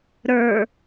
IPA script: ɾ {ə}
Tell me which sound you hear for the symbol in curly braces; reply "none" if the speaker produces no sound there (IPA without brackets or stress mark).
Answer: ə˞